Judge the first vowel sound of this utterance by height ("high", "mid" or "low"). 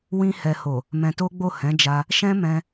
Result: high